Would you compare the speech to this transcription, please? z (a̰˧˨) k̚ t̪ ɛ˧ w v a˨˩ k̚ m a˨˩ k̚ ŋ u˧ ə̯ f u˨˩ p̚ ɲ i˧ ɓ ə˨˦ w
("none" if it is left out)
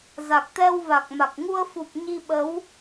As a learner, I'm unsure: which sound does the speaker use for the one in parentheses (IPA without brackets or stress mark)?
a˨˩